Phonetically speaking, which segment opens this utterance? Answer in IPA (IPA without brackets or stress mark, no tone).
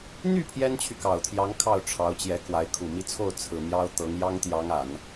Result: n̪